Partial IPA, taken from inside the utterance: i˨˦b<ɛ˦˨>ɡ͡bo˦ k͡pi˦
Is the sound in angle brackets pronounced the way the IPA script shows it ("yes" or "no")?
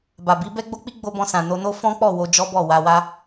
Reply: no